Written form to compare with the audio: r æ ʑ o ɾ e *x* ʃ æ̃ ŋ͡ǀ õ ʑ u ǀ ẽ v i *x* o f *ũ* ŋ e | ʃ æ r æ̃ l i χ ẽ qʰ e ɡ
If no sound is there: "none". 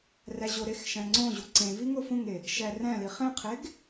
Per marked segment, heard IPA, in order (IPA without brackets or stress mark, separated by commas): x, ŋ, ũ